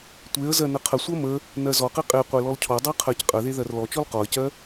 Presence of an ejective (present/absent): present